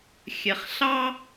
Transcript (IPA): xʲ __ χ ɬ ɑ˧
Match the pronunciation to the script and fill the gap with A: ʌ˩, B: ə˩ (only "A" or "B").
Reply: B